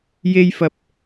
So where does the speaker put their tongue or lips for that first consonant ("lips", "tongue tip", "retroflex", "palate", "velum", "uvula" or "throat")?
palate